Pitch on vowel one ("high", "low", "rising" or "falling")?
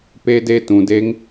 high